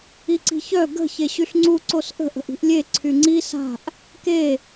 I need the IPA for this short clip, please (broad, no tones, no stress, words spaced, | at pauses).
iǀi̤çœ ɡə̤ çeɕyɬŋ͡ǀu ǀosʔə̤ ʔə̤ʔi̤ʔlʲe ǀʰyŋ͡ǀi sa̤ʔ | ke